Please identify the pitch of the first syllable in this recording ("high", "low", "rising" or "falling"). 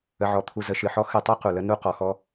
low